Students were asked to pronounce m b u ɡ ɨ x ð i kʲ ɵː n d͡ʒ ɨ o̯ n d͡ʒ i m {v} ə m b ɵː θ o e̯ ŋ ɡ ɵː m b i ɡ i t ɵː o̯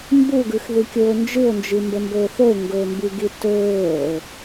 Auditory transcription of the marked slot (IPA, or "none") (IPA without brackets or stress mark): b